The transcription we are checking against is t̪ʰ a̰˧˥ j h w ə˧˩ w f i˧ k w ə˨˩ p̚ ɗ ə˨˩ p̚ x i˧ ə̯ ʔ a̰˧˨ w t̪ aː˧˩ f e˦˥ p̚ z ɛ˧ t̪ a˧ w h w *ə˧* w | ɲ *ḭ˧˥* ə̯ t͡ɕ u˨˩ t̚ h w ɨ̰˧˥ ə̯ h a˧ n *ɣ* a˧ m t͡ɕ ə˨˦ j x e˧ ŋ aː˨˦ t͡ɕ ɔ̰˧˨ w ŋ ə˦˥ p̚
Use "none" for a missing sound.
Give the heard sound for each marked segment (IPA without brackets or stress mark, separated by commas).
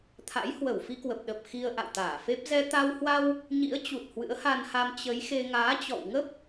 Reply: a˧, ḭ˧˥, h